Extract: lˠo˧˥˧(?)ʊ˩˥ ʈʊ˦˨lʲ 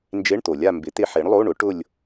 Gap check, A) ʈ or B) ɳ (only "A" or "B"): B